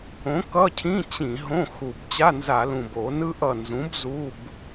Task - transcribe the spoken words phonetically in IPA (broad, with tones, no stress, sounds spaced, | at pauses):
õ˨˥ k ʌ˧˥˧ cʰ ĩ˧˥˧ t͡ɕ ĩ˧˩˧ ɦ õ˧˥˧ x u˨˩ b t͡ɕ a˧˥˧ n z a˧˩˧ l ũ˨˩ b o˧˩˧ n ɯ˥ ʔ ʌ˦˨ n z ũ˨˥ b z u˧˥˧ b